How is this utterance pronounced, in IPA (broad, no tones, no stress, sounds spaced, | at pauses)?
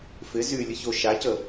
f ɪ z y lʲ ə ç o ʃ a c ə